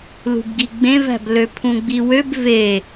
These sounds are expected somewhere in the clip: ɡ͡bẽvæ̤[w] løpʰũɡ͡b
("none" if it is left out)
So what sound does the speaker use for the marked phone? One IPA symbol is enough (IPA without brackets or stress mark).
b